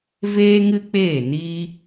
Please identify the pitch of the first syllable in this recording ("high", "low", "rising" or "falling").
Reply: high